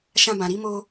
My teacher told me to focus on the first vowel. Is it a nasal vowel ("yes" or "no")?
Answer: yes